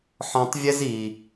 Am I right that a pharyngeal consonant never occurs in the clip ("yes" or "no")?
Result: no